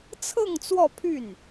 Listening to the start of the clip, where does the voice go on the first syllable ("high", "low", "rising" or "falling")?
falling